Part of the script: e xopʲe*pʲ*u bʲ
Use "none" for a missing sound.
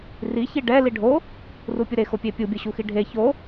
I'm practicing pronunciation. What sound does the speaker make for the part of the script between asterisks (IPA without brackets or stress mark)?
pʲ